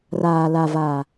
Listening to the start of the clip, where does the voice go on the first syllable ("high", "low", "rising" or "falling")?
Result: low